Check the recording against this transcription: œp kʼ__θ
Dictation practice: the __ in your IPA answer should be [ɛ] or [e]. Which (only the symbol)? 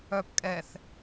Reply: ɛ